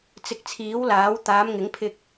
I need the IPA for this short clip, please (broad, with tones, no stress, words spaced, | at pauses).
t͡sɪ˧k̚ t͡sʰiː˨˥wlaː˨˥w t̪aː˨˧mŋɪ˨˥ŋpʰɪ˧k̚